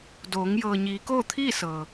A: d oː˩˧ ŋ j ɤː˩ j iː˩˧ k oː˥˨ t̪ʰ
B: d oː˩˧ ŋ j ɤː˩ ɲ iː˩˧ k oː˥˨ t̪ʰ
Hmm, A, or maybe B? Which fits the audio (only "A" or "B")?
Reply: B